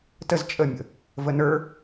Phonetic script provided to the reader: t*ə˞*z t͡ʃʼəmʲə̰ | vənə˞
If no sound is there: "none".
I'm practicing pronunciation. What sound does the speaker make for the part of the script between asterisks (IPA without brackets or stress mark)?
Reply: ə